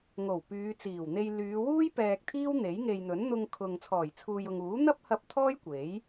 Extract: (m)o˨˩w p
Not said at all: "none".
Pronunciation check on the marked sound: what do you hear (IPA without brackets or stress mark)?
ŋ